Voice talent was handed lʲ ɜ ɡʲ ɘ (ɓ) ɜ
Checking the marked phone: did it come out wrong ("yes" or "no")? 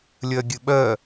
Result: no